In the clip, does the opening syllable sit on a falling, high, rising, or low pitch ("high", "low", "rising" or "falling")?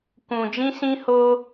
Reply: low